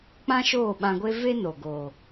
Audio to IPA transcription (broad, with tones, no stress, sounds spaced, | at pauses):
k͡p ã˦ ʃ oː˦˨ ɓ ã˧ ɡʷ e˦ v e˦ n o˨ ɡ oː˨